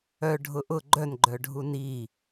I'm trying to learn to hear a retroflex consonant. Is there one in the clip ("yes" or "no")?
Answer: yes